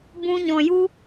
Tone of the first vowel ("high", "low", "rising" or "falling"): high